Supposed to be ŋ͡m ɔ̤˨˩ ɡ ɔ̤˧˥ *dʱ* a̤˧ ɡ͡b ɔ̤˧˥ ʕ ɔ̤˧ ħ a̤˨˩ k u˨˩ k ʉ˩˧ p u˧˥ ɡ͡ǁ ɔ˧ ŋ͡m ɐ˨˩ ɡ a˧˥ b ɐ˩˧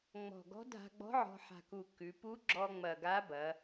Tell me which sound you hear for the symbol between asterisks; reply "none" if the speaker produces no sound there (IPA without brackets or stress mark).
dʱ